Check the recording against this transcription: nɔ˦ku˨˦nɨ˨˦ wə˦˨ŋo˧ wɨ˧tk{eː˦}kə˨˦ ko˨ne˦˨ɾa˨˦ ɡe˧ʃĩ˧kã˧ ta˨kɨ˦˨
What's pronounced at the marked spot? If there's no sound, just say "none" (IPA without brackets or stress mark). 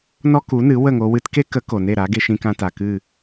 e˦